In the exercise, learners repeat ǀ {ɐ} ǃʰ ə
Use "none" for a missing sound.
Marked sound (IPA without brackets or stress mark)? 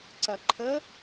ɐ